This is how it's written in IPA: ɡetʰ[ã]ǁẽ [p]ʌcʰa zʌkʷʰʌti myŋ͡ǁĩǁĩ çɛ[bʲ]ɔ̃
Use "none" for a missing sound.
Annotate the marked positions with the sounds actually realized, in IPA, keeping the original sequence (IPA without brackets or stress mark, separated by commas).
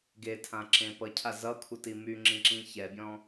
ã, p, bʲ